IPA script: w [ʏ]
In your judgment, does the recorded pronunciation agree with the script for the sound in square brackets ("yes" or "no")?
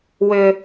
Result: yes